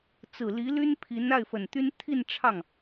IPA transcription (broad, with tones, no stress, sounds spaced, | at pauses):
t͡s ɹ̩˨˩ l i˧˥ l y˥ n pʰ i˧˥ n a˥˩ ɪ̯ f ə˨˩ n t̪ y˥ n t̪ʰ i˥˧ n ʈ͡ʂʰ ɑ˥˩ ŋ